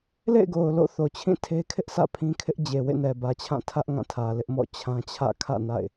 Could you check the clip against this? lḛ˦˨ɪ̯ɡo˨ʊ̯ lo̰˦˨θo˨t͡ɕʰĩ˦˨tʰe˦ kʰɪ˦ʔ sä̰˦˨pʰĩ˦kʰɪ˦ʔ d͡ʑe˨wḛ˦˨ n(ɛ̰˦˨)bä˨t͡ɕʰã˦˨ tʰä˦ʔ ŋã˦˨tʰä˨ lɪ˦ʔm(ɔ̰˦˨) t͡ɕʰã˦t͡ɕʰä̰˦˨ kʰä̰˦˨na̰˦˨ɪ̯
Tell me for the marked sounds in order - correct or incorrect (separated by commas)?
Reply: incorrect, correct